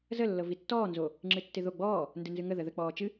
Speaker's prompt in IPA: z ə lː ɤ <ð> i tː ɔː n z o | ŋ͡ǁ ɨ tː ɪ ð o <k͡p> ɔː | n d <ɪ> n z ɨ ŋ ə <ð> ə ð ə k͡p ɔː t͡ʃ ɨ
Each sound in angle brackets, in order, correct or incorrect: incorrect, incorrect, incorrect, correct

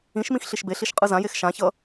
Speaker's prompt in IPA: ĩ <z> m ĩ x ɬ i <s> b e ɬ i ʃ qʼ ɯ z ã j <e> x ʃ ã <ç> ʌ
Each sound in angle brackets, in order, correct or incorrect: incorrect, incorrect, correct, correct

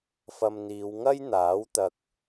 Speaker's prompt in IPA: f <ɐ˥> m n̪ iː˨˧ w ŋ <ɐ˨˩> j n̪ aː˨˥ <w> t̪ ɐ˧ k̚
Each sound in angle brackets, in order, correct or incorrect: incorrect, incorrect, correct

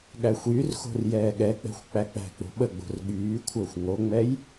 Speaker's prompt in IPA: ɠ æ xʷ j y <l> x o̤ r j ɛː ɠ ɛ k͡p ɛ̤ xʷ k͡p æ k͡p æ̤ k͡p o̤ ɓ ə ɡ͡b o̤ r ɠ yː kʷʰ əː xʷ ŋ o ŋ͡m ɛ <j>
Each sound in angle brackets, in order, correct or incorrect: incorrect, correct

